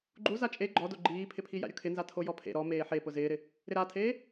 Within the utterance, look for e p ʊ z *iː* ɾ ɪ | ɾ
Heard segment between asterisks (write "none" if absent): ɪː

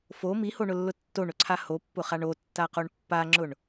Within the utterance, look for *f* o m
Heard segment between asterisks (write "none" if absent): f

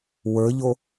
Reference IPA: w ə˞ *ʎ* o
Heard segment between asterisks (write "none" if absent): ʎ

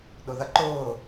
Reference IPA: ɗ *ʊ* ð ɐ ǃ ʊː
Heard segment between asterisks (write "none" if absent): ʊ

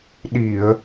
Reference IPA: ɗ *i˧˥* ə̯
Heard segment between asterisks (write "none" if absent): i˨˩˨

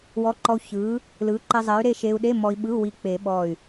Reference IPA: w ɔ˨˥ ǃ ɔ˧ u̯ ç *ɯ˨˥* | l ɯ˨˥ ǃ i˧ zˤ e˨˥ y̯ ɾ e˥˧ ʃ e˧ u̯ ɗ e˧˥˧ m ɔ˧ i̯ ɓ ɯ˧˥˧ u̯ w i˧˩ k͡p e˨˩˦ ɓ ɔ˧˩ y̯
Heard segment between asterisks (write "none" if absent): ɯ˨˥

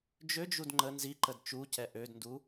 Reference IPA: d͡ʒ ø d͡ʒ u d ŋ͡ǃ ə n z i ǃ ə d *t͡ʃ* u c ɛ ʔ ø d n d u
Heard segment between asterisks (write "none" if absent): t͡ʃ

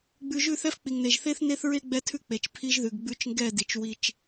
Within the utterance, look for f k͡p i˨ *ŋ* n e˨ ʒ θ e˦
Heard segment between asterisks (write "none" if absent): ŋ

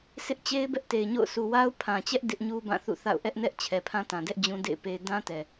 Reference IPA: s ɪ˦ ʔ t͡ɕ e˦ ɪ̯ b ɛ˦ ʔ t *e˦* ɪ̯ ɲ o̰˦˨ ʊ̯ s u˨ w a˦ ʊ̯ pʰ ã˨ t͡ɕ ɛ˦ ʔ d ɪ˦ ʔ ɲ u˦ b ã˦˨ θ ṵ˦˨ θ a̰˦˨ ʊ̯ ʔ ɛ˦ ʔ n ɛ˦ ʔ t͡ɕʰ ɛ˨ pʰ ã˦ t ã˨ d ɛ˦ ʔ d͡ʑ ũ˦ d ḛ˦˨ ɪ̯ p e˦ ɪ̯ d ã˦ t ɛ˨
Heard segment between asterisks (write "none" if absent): e˨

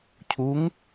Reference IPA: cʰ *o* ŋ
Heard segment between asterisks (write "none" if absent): u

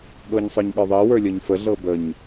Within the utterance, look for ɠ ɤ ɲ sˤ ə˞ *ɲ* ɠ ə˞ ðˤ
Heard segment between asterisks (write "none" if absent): ɲ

